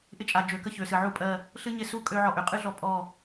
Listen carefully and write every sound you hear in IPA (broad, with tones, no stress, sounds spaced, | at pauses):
ʔ ɪ˦ t͡ʃʼ a˨ d͡ʒ ø˨ k ə˦ ç ø˨ s ɨ˨ ʕ u˦ pʼ ɜ˦˨ | ɬ ɨ˦ ɲ ɪ˦˨ s u˦ kʼ ø˦ ʕ ɔ˦˨ ʔ ø˨ qʼ ɨ˦ ɮ ɔ˦ pʼ ɔ˦˨